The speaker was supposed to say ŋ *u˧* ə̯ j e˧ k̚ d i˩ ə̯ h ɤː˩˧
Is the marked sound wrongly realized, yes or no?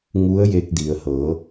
yes